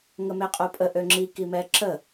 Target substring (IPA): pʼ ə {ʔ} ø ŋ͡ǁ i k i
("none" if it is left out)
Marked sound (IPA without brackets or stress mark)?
ʔ